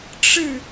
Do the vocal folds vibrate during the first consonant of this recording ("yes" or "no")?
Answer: no